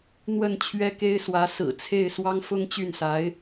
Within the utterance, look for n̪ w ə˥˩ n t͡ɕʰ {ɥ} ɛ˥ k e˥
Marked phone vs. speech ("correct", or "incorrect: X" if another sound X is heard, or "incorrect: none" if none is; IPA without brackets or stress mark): correct